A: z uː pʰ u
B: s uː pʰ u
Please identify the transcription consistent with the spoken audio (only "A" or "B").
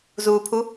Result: A